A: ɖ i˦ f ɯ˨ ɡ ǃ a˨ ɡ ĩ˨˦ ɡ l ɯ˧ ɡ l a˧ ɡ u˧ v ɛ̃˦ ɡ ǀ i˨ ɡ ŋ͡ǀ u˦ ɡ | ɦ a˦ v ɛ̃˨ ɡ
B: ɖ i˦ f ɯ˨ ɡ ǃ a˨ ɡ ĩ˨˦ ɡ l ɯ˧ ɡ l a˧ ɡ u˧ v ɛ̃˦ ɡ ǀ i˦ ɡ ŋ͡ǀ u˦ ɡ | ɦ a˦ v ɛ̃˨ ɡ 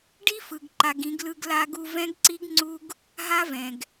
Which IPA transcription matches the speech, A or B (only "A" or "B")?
B